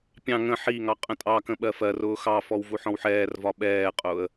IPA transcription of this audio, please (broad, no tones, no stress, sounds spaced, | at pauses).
pʲ ɑ̃ ŋ ə̃ ħ i ŋ ɑ qʼ ə̃ tʼ ɑ k ə̃ ɓ ɜ f ɜ r ʊː x ɑ f ɔ w v u ħ ɔ̃ w ħ ɛː r v ɒ ɓ ɛː qʼ ʊː ə̯